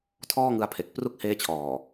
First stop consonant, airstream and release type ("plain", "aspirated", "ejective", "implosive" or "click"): aspirated